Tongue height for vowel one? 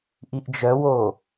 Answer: high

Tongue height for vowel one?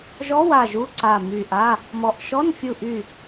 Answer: mid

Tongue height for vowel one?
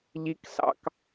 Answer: high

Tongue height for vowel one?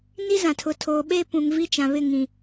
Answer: high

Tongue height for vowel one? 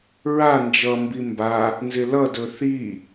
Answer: low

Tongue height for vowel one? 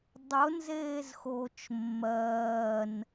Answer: high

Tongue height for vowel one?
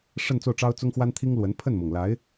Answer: mid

